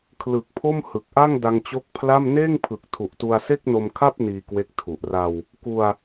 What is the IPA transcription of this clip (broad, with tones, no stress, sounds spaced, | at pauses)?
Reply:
kʰ l ɯ˨˩ k̚ pʰ o˥˩ m h ɯ˨˩ k̚ ʔ a˥˩ ŋ d a˧ ŋ t͡ɕ o˦˥ k̚ pʰ l a˥˩ m n eː˥˩ ŋ pʰ ɯ˨˩ k̚ tʰ u˨˩ ʔ t u˧ a̯ s e˥˩ k̚ n o˧ m kʰ a˥˩ p̚ n iː˧ k w e˦˥ k̚ tʰ u˨˩ ʔ r a˧ w | k u˧ a̯